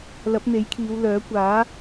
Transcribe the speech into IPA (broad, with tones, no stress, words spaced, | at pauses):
lɐ˨˥p̚n̪e˨˥jkʰiː˨˧wlœː˨˥ kʷaː˨˥